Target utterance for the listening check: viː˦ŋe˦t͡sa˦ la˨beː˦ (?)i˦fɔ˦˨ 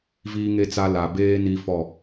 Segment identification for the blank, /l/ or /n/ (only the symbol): n